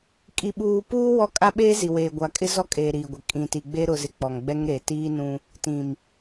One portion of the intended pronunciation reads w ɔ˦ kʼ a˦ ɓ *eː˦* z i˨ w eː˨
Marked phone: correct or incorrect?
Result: correct